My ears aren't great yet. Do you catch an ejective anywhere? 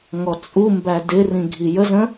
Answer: yes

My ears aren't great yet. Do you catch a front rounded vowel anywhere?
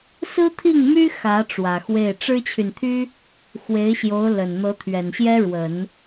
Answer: yes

